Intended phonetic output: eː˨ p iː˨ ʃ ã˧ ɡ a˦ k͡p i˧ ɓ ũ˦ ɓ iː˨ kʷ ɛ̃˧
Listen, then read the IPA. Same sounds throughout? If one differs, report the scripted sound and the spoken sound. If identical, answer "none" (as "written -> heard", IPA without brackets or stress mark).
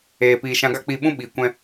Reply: none